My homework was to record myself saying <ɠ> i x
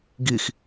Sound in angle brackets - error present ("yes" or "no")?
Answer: yes